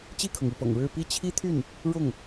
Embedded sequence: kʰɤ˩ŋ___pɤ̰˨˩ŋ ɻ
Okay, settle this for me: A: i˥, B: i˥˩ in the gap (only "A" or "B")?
B